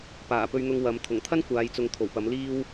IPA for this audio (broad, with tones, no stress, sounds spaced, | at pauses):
p aː˨˩ p ɵ˧ ɥ n̪ ʊ˧ ŋ w ɐ˨˧ m t̪ʰ ʊ˨˩ ŋ t̪ʰ ɐ˥ n kʷ aː˨˧ j t͡s ʊ˨ ŋ t̪ʰ o˨˩ w p ɐ˨˥ m l iː˥ w